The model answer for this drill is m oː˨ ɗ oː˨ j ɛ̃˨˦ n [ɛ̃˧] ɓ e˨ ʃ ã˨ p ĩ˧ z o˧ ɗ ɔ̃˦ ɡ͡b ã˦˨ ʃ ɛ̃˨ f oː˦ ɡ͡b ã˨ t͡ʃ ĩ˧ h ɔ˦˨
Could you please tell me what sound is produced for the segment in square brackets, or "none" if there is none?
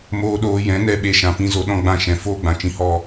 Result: ɛ˧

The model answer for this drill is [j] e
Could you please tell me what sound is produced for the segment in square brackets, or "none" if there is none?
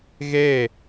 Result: ɣ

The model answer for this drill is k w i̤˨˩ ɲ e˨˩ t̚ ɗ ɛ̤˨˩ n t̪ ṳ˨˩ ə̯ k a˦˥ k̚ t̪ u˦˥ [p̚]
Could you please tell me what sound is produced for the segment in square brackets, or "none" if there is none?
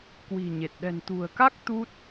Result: t̚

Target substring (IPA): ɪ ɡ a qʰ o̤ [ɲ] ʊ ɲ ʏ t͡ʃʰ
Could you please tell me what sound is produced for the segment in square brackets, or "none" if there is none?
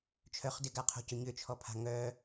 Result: c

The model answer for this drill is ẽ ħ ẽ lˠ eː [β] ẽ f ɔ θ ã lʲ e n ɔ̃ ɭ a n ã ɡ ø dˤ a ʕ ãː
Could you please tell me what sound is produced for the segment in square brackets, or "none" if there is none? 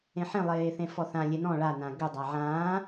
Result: θ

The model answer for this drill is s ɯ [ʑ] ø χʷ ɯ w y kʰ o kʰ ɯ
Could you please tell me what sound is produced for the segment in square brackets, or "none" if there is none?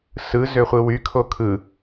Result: z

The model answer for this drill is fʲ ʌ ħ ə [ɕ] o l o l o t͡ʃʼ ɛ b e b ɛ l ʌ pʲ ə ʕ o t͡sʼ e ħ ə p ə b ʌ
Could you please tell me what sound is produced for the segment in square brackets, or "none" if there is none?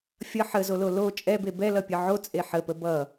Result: z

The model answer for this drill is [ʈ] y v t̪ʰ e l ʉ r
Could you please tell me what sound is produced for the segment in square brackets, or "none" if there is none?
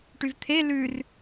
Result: ʈ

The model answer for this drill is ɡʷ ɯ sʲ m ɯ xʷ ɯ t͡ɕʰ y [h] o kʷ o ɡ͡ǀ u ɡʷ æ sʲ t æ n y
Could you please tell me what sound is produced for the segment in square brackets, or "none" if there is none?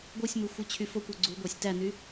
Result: f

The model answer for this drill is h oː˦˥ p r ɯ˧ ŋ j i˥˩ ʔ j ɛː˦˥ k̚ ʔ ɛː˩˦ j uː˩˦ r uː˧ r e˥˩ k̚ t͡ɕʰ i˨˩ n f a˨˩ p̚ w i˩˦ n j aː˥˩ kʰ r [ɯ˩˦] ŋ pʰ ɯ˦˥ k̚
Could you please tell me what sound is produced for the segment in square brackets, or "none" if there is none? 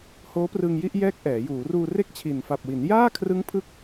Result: ɯ˦˥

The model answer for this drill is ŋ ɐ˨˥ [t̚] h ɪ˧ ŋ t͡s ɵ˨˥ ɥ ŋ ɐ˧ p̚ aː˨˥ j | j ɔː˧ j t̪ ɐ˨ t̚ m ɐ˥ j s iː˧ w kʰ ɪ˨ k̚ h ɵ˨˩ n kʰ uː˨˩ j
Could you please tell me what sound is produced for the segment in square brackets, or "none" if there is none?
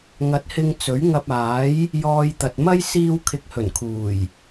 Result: t̚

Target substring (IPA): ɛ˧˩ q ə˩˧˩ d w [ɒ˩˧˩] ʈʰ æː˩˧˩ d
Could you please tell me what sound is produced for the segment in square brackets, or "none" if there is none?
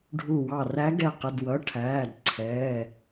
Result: ʌ˩˧˩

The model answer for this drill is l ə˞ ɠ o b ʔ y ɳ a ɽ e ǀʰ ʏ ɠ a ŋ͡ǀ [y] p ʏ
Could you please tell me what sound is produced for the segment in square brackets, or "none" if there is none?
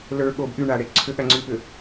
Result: y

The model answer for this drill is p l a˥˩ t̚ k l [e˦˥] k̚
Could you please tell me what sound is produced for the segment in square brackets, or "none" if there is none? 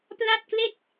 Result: e˥˩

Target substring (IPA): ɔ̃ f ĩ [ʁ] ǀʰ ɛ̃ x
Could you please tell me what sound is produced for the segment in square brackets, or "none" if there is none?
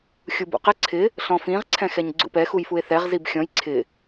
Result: ʁ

